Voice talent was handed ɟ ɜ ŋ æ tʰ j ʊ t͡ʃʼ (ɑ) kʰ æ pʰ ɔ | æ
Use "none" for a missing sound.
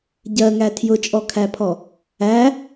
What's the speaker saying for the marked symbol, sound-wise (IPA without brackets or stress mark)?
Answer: ɔ